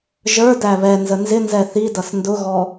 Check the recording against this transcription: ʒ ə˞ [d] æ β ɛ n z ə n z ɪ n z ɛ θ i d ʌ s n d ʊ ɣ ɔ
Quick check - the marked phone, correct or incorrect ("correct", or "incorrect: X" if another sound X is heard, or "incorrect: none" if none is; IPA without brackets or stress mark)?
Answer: correct